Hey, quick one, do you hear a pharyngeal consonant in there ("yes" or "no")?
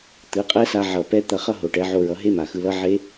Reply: yes